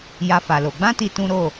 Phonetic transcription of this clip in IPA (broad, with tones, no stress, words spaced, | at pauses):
ja˦fa˧lo˧ ɡ͡bã˦ti˧ tũ˦ɾo˦˨